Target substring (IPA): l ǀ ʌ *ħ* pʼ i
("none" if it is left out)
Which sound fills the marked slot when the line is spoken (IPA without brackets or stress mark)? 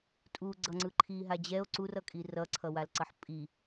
ħ